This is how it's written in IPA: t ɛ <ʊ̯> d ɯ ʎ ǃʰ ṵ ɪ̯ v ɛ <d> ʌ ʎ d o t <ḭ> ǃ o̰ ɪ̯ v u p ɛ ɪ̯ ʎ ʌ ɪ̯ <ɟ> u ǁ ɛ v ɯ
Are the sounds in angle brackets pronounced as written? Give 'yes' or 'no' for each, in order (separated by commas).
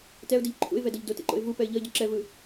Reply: yes, yes, no, yes